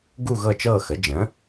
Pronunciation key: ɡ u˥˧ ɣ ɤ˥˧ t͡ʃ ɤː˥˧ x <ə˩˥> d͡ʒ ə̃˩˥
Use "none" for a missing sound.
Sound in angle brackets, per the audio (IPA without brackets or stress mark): ə˩˥